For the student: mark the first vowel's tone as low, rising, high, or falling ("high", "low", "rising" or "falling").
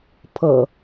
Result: low